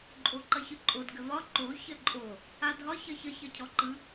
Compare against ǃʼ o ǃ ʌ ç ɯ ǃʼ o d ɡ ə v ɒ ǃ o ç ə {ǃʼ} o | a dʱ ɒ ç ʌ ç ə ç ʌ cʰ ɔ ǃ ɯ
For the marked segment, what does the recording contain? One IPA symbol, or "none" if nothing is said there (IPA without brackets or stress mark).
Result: ǃʼ